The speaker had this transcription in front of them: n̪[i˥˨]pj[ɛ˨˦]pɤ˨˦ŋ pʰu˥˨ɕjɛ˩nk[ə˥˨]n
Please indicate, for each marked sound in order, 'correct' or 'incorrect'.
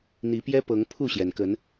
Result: incorrect: i˨˦, incorrect: ɛ˦, incorrect: ə˨˦

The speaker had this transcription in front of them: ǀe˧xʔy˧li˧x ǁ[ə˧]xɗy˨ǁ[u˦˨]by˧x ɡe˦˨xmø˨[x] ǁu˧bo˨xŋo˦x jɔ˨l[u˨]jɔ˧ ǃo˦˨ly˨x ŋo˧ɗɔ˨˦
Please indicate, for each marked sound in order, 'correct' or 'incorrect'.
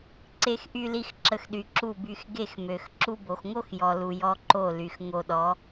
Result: correct, correct, correct, correct

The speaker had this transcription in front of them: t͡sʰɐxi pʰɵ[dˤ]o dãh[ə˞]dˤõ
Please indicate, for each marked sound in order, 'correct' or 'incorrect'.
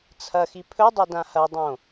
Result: correct, incorrect: ɐ

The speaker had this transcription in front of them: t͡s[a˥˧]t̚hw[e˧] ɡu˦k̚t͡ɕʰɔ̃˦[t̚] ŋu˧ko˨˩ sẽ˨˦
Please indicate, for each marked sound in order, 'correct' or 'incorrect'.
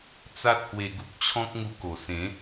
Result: incorrect: a˦, correct, incorrect: k̚

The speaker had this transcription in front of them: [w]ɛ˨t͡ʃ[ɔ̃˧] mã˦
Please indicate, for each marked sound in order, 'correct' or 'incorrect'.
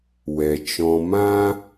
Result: correct, correct

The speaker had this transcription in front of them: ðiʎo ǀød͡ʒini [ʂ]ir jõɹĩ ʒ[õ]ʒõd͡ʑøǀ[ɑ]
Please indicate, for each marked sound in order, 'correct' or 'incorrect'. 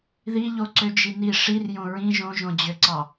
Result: correct, correct, correct

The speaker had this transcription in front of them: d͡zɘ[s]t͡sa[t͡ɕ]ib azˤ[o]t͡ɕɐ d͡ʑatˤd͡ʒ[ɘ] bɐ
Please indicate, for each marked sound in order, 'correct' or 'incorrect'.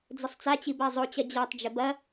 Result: incorrect: sˤ, correct, correct, correct

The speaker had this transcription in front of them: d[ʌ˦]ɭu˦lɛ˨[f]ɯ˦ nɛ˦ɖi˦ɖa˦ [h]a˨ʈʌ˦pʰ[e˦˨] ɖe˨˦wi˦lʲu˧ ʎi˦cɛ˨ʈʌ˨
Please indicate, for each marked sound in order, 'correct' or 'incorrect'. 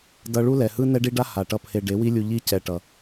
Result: incorrect: ʌ˧, incorrect: h, correct, incorrect: e˧

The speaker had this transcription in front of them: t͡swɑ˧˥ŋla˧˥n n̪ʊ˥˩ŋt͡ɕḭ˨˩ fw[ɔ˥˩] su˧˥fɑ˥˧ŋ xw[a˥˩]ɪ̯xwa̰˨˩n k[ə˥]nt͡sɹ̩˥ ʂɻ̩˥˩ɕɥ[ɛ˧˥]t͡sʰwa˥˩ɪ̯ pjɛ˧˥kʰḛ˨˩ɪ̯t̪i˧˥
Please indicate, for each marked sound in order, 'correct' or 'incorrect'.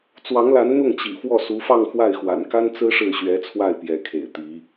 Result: correct, correct, incorrect: a˥, correct

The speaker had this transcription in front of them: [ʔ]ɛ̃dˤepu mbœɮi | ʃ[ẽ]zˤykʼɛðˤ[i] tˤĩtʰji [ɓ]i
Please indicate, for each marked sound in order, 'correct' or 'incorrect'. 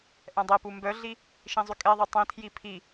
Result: correct, incorrect: ĩ, correct, incorrect: pʰ

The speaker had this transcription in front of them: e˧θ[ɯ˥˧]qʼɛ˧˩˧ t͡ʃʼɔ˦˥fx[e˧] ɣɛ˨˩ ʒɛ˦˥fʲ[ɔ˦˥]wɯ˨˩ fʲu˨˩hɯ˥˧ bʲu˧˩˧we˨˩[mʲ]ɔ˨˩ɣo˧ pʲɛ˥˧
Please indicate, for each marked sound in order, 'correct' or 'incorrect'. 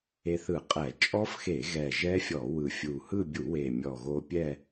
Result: incorrect: ɯ˧˩˧, incorrect: e˧˩˧, incorrect: ɔ˧˩˧, correct

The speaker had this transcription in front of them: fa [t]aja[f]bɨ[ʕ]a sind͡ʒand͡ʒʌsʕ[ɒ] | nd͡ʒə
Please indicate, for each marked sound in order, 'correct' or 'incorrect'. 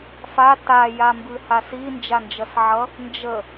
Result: correct, incorrect: m, incorrect: h, incorrect: ʌ

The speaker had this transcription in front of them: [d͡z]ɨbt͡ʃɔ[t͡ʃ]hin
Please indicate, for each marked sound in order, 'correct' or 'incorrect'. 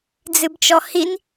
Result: correct, incorrect: none

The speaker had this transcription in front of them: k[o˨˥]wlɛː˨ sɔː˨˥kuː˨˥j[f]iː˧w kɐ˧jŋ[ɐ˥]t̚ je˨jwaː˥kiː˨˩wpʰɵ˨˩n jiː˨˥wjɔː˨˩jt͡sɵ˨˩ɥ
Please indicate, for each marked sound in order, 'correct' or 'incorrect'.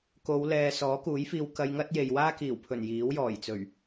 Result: incorrect: o˨˧, correct, correct

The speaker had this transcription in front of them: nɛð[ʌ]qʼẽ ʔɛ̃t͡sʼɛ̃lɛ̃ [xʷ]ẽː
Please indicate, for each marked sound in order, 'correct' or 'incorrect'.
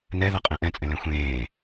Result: correct, correct

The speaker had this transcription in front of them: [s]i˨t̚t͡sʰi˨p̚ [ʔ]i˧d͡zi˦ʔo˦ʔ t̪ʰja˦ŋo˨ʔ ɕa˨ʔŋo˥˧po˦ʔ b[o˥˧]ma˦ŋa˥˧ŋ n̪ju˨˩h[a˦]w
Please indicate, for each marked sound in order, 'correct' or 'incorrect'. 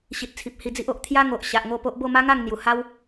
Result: incorrect: ɕ, incorrect: h, correct, correct

